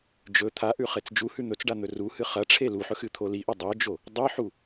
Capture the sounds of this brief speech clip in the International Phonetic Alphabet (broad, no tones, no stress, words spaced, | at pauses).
d͡ʒɵ t̪ʰaʔʉ χet͡sd͡ʒuhʉ n̪ɵt͡sɖa n̪ɵruhɨ χɐʈ͡ʂʰe luħɵ xɨt̪ʰoliʔɵ dˤod͡ʒo | dˤɨħu